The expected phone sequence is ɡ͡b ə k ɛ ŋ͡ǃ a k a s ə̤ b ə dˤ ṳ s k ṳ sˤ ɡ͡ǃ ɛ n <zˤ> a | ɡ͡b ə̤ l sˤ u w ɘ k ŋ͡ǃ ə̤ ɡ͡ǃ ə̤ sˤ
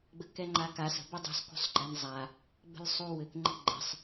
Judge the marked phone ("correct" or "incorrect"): correct